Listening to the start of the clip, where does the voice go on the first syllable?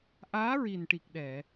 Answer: rising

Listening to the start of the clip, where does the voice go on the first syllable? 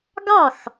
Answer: falling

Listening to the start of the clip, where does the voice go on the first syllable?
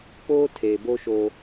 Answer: high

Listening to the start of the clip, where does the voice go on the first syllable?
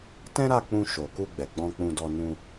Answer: high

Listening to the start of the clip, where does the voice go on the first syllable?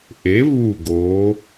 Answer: rising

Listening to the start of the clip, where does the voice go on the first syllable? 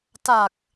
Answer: low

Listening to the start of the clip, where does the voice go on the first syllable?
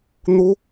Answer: high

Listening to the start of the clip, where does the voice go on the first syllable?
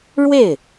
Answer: falling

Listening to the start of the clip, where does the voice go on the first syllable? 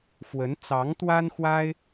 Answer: rising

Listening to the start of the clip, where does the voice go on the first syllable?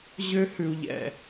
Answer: high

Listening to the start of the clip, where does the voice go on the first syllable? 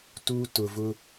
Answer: high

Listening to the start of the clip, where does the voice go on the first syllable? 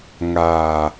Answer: low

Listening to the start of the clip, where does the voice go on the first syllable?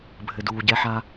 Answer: low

